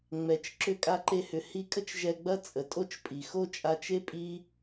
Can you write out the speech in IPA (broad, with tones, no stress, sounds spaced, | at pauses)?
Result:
ŋ͡m ɛ˨ t͡ʃ ǁ ʏ˧ kʼ a˧ ǃ e˧ h ʏ˨ h i˧ kʼ ə˦ t͡ʃ ʒ ɛ˧ ɡ͡b ɐ˦ t͡sʼ ə˨ tʼ o˦ t͡ʃ pʼ i˨ x o˦˨ t͡ʃʼ a˧ t͡ʃ e˦ pʼ i˦